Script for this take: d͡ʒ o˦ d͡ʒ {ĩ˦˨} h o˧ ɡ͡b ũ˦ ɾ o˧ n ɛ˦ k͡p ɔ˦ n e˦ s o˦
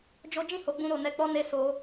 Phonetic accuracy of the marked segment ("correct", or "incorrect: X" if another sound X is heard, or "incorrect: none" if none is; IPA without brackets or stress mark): correct